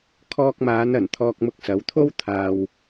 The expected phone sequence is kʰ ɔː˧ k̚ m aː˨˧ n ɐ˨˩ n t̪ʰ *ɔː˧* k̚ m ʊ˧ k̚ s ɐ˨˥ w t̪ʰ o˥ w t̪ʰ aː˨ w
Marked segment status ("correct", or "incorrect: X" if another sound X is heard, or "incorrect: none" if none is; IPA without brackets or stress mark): correct